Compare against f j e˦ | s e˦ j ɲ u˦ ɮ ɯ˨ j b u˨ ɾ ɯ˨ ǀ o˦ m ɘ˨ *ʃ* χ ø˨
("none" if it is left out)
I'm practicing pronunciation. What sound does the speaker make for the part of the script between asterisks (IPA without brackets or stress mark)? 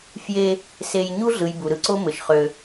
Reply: ʃ